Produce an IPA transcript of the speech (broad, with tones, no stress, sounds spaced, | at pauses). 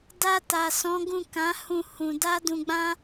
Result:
d a˧ t a˨ s ɔ̃˨˦ ɡ ũ˦˨ k ã˨˦ h ũ˦˨ h ũ˧ d a˦ d ũ˧ ɡ͡b ã˦